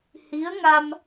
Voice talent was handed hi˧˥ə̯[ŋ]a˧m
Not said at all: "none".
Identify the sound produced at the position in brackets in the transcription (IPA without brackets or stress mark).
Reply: ŋ